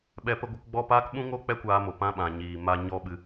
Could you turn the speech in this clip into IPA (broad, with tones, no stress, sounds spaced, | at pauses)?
ɓ ɛ˧ p ə˧ ɡʷ ə˧ k ɡ͡b ɔ˦˨ p aː˦ k ɓ ũ˦ ŋ o˦ k͡p ɛ˦ kʷ aː˧ m o˨ p ã˧ ɓ ã˨ ɲ iː˨ m a˧ ɲ ɔ˦ ɓ ɨ˧